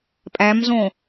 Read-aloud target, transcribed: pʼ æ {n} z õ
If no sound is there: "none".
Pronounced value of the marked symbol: m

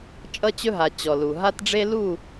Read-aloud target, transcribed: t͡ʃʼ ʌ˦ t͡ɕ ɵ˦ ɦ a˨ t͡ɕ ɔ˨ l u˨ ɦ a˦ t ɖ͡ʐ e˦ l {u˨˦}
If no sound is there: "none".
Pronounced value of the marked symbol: u˦˨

